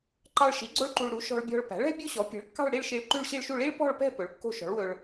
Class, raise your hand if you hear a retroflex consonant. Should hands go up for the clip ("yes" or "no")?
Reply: yes